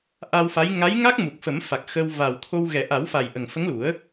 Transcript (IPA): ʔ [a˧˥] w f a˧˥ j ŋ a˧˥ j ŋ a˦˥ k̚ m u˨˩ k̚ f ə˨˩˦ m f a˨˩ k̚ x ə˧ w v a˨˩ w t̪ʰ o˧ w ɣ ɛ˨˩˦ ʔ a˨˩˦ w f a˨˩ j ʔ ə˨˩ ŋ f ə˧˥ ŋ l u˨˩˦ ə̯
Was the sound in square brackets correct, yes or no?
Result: no